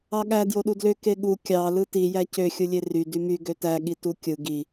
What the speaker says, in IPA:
ɑɠæ djoɗudlø keɠu kʲɑ lɯti jæcø xʲɯlʲery dymy ɡøtæ ɠitukʲɯ ɡi

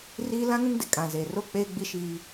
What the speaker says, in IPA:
riː˦ lã˦ŋũ˦ŋdɪ˨ kʼã˨zeː˨ro˦ k͡peː˦ɡ͡bi˦ ʃiː˦

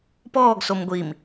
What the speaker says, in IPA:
pɔːɡsom ɡʷim

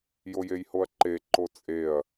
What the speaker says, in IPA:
jojejhoɐ̯ǃe ǃot͡sʼeɐ̯

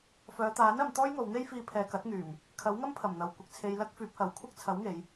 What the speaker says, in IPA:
fœː˨˧t̪aː˨˥n ɐ˨˧mt̪ɔː˥jŋo˨˧w n̪e˥jfiː˧pʰɛː˨ kɐ˨˥t̚ŋyː˨˩m | kʰɐ˨˥wŋɐ˥mpʰɐ˨˩m n̪ɐ˨wkʷɪ˧k̚t͡sʰe˧j lɐ˥k̚ fyː˨˥p̚hɐ˨˥w kʷʰɐ˥k̚ t͡sʰɐ˨˥wŋe˨˧j

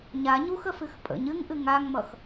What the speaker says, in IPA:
ɲa ɲuxəfɨx pʼə̰ɲ ɨŋʔɨ ŋaŋmʌx

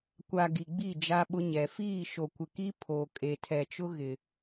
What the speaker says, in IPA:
kʷa˨ ɡi˨ɡ͡bi˦˨ d͡ʒa˦ɓʊ˦ɲɛ˨ fiː˦˨ʃo˨kʷɪ˨ki˦ pʰoː˨ kʼe˨tʰɛ˨t͡ʃʊ˦ɣɪ˨

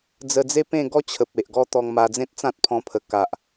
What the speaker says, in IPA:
d͡zə˧d͡ze˦pẽ˥˧ɡɔ˦ t͡ɕʰə˨p̚ e˨ʔɡɔ˦t̪ɔ˧ŋma˧ d͡zẽ˦t̚t͡sã˦t̚pʰɔ̃˧pʰə˨˩ ka˨ʔ

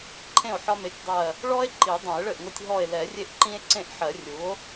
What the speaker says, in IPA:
ǃʰẽ˥˩o̯ħɒ˦me˩˥tʲdˤɜ˧˩ | ɭɔ˦e̯ ǃi˨˩˦dˤɛ̃˨˩˦e̯ɭɘ˥˩ʔŋo˦tʲ ɦɔ˧˩e̯lɛ˨˩˦rʲe˦ʔ ǃĩ˦e̯ǀẽ˥˩ʔħɜ˨˩˦rʲu˩˥o̯

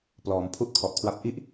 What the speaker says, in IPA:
plɔː˩˦m pʰu˦˥ʔ kʰɔ˨˩ʔkʰwa˦˥p̚ ʔi˥˩ʔ

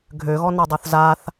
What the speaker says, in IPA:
ɡʱøɣɔnadˤoθ zaθ

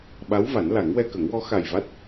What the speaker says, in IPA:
ɓa˧˥w va˨˩˦nla˨˩˦ŋwɛ˧ kə˨˩˦ŋwɔ˧˥ xa˨˩jva˦˥t̚

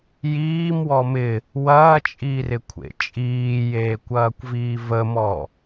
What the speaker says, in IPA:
jiːmwɔ mɪ | wɐːt͡ʃʼiːrɪkʷʰḛ t͡ʃʼiːjeːkʷɐːkʷviː vəmɔ

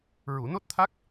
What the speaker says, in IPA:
ɹu˨˩˨no˦˥t̚t̪ʰa˦˥k̚

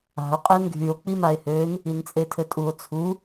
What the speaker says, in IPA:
a̤o̯ qʼɛnɡʱyo̯ k͡pimae̯høn | int͡sʼetʰɘtʼuo̯ t͡sʰu

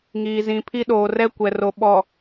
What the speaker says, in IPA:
ŋiː˨zĩ˨pʰi˦ ɗoː˨rɛ˦kʷɛ˨ro˨ ɓɔ˨

